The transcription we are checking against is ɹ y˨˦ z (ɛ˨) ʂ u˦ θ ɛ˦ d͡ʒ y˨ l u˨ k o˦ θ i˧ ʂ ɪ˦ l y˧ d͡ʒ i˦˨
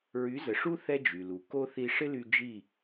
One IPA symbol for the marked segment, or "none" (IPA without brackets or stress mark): ə˨